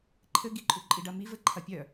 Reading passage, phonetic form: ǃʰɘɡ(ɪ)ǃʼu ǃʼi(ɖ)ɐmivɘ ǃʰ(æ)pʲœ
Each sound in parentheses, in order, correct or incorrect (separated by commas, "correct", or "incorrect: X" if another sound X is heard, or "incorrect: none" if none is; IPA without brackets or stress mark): incorrect: i, correct, incorrect: ɐ